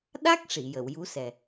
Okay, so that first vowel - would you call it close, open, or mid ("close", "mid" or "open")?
open